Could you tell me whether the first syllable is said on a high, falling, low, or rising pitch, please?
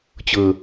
low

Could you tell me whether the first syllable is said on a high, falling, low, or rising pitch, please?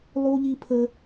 high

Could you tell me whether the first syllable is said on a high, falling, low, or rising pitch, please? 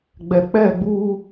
low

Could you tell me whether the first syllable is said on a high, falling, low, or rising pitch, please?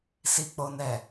low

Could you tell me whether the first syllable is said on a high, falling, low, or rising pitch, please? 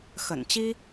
low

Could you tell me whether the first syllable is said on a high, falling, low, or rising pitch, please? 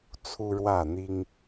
high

